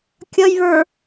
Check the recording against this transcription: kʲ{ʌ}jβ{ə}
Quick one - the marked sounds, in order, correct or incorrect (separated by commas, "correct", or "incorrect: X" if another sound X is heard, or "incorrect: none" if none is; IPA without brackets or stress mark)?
correct, incorrect: ə˞